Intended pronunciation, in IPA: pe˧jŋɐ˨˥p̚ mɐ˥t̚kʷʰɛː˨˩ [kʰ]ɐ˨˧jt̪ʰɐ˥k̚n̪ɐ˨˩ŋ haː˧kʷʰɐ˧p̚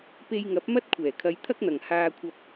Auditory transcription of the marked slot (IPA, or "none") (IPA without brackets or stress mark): kʰ